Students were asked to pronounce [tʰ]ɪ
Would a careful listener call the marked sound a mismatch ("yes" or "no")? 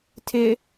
no